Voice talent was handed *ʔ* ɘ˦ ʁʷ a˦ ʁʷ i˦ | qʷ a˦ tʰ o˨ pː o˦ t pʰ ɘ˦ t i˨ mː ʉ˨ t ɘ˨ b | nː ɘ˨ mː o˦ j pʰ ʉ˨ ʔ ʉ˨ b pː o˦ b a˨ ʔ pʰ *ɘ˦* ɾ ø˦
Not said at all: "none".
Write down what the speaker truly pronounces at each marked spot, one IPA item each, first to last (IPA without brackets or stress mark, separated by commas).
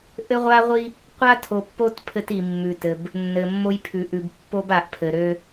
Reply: ʔ, ɘ˨